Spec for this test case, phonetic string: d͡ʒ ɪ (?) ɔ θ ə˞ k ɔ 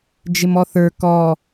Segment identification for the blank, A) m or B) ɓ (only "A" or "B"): A